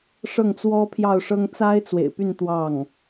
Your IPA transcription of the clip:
ʂ ɤ˥˩ ŋ t͡s w ɔ˥ pʰ j ɑ˥˩ ʊ̯ ʂ ɤ˥ ŋ t͡s a˥ ɪ̯ t͡s w ḛ˨˩ ɪ̯ p y˥˧ n t̪ w ɑ˥˩ ŋ

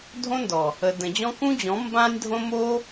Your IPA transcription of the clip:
dʱ õ˦ n d ɔ˨ | ə˨ d ə̃˨ d͡ʑ ɔ̃˦ k ũ˦ d͡ʑ ɔ̃˨˦ m b ã˦ nʲ dʱ õ˦ m o˦

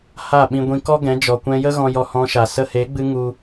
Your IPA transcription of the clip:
h a˦˨ ɓ ĩ˧ ɡʷ ĩ˧ k ɔ˦ ɡ ɛ̃˨˦ d͡ʒ ɔ˨ kʷ ɛ̃˧ j ə˦ ɣ ɔ̃˧ j ɔ˧ h ɔ̃˧ ʃ a˨ s ə˧ h e˨˦ ɡ͡b ɨ˧ ŋ u˧

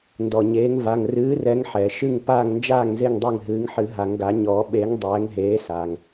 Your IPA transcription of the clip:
n d ɔ˩ ɲ eː˨˦ ŋ v a˩˧˩ ŋ r ɨː˨˦ r ɛ˨˦ ŋ ħ ɛː˩ ʃ ɨ˥˨ ŋ p aː˥˨ ŋ n d͡ʒ aː˥˨ ŋ z e˥˨ ŋ dˤ e˥˨ ŋ ɦ ɨː˨˦ ŋ ħ ɨ˨˩˦ ɦ a˨˩˦ ŋ ɡ a˨˩˦ ɲ ɔː˨˩˦ ɓ eː˨˦ ŋ dˤ ɛː˨˦ ŋ ɦ eː˨˦ s aː˩ ŋ

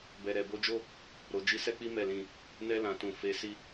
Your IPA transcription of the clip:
b ɛ˨ ɾ ɛ˨ b o˧ d͡ʒ o˦ | ɾ o˨ d͡ʒ i˨˦ s ɛ˦ k͡p i˦ m ɛ˦˨ l ĩ˧ | n ɛ˧ l ã˨ t ũ˨ f e˨˦ s i˦

